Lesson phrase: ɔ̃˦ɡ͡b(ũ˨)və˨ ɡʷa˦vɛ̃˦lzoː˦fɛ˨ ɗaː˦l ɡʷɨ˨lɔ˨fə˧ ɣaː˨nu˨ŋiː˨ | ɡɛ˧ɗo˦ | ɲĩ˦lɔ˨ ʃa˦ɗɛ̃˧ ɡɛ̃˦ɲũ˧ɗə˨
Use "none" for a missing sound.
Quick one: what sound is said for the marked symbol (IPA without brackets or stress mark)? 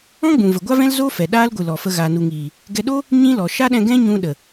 ũ˨